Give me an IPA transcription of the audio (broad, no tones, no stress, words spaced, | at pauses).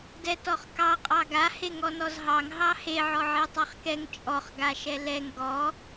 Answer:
dɛtɔχkɑ qʼɑɡa heŋɔnɔzɦɑŋ ɦɑhe ʕɔʕetˤɑχkɛŋ t͡ʃʼɔχ ɡaʃɛlɛŋ ɡɔ